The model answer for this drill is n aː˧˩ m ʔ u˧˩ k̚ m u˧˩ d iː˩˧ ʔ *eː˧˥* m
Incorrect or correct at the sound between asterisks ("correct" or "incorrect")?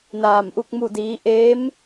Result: correct